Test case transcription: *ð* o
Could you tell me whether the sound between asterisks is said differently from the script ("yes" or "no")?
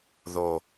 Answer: no